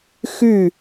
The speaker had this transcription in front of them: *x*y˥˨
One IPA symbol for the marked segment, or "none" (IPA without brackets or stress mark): x